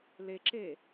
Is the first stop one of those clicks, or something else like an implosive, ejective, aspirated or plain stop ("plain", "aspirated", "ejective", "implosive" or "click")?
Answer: click